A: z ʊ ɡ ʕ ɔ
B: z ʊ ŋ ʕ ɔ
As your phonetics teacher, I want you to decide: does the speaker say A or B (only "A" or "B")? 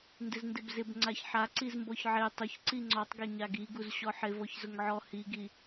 B